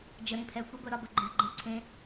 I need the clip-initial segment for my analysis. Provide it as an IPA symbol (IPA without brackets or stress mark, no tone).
d͡ʒ